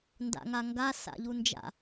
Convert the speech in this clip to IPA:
n d a̰ ŋ a ŋ ɡ a s a̰ ʎ u n d͡ʒ a̰

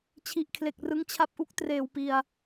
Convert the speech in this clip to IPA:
t͡ɕʰ i˨˩ ʔ kʰ l e˨˩ k̚ r ɯ˦˥ ŋ t͡ɕʰ a˦˥ p̚ ʔ u˦˥ k̚ t r eː˨˩ w p i˨˩ a̯

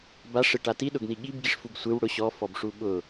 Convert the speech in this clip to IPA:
b a ʂ ɪ ʈ a t i ɗ ʊ ɡ n i ɠ i b ɡ i ʂ f u ɡ sʷ ɪ w ɽ ʊ ɕ ɔ f ɔ b ʂ u ɓ ʊ

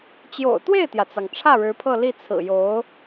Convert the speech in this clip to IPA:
t͡ɕ j o̰˨˩ ʊ̯ t̪ w e˥˩ ɪ̯ t̪ j ä˩ t͡s ɑ˩ ŋ ʈ͡ʂʰ ä˥˩ ɻ ɻ̩˧˥ pʰ ɤ˥˧ l i˥˩ t͡sʰ ɹ̩˨˩ j o˧˥ ʊ̯

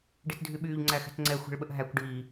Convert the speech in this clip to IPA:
ɖ i t dʱ y ɓ yː ʎ ŋ͡ǀ æ x ɛ̤ t ŋ͡ǀ ɛ xʷ ɛ̤ ɭ ɓ ə ʔ ɦ æ kʷ ɖ iː

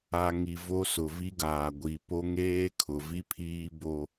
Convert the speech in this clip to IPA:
a˨ ŋ i˨ v o˦ s ʊ˨ v i˦ ɡ aː˨ ɡʷ i˨ p o˦ ŋ eː˦ kʰ ʊ˨ v i˦ pʰ iː˦ b o˦

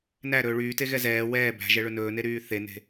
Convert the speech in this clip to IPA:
n æ ɾ ɵː ɭ yː t e ɣ ɛ z ɛː w ɛː b æ̤ ʒ ɛ ɭ ɵ n ɵː n e ɾ yː θ e n e̤

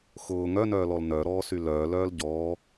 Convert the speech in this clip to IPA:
x ʊː ŋ œ n œː l ɔ l n œ ɾ ɔː s y l œː l œː l ɟ ɔː

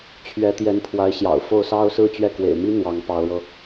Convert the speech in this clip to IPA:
t͡ɕʰ ɥ ɛ˧˥ t̪ j ɛ˧˥ n pʰ w a˧˥ ɪ̯ ɕ j ɑ̰˨˩ ʊ̯ f o˥˩ ʊ̯ s ɑ˥ ʊ̯ s ɹ̩˥˧ t͡ɕ ɥ ɛ˥˩ k w ḛ˨˩ ɪ̯ m i˥ n̪ w ɑ˧˥ ŋ p ɑ˧˥ ʊ̯ ɻ ɤ˧

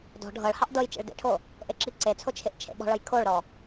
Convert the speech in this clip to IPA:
d ɔ̤ ɖʱ ɤ ɭ h ɑ ʔ d ɤ j t͡ʃ ḛ ɭ d ḛ ʈʰ o | ʔ e ǁ i ǀ e t͡sʰ o t͡ʃʰ ɪ ʔ t͡ʃʰ ḛ ɓ ɔ̤ ɭ ɤ j kʰ o ɭ ɾ ɔ

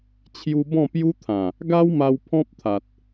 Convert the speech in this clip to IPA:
t͡ɕʰ j u˧ b ɔ̃˥˧ p j u˦ t̪ʰ ã˨˩ | ɡ a˦ w m a˧ w pʰ ɔ̃˦ p̚ t̪ʰ a˨ t̚

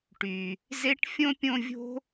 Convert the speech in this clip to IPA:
ʈ y˨ | z e˥ ʈ fʲ õ˥ pʲ õ˦ vʲ o̤˥

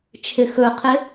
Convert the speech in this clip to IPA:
t͡ʃʰ ɪ x ɵ qʰ ɪ

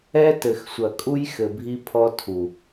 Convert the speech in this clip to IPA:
ɛ˦ t ɘ˨ x sʷ ɐ˨ kʼ u˦ j x ɘ˨ bʱ i˦ pʰ ɔ˦ tʰ u˨

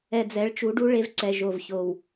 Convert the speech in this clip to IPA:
ɛ˨ d͡z ɛ˨˦ ɭ t͡ʃ u˨˦ ɖ u˦ ɭ e˦ v ǀ ɛ˨ ʒ o˨ v ç o˨ w

